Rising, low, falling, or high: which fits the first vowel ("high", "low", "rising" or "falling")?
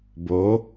rising